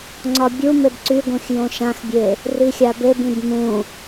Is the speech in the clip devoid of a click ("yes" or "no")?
no